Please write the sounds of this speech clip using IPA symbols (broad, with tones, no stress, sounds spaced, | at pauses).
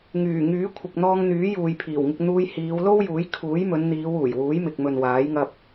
ŋ yː˨˩ ŋ yː˨˥ kʷʰ ɪ˨ k̚ n̪ ɔː˧ ŋ n̪ yː˨˥ j uː˨ j pʰ iː˨˩ w ŋ ɪ˧ k̚ n̪ uː˧ j h iː˨˧ w l o˥ w j uː˨˥ j kʰ uː˨˥ j m ɵ˨˧ n n̪ iː˨˧ w uː˨˩ j w uː˨˥ j m ɪ˨ k̚ m ɵ˨ n w aː˨˥ j ŋ ɐ˧ p̚